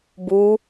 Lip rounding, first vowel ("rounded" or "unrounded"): rounded